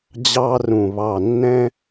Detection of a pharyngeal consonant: absent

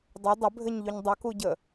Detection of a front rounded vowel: present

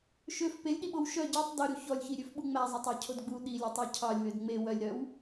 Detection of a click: absent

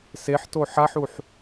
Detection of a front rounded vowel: absent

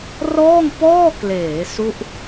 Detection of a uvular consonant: absent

